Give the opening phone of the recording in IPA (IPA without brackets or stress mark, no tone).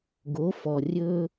ɡ